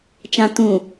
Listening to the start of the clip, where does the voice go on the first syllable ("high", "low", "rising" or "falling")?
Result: low